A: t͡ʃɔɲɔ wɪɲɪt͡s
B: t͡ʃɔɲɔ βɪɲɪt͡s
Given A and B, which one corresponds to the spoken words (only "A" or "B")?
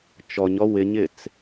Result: A